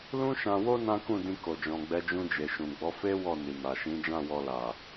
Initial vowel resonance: nasal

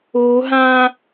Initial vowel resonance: oral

